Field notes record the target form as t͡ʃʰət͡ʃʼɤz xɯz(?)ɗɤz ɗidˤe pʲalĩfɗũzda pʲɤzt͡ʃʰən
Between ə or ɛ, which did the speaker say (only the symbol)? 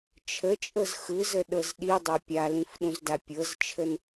ə